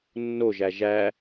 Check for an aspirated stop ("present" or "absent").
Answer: absent